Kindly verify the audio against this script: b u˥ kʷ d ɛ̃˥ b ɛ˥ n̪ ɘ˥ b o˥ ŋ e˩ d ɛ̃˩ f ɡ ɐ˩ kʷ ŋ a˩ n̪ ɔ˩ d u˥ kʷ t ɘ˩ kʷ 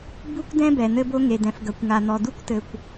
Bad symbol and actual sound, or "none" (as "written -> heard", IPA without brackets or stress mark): ɛ˥ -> ɛ˩